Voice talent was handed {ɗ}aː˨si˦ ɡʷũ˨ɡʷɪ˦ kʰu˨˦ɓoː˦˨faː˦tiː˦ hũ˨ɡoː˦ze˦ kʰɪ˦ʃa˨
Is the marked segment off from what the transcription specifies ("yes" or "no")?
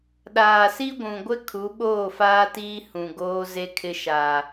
no